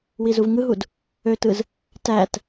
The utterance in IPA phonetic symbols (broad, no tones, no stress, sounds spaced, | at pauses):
w i z u v ŋ ɯ ɦ u d | ø t ɯ z | t æ t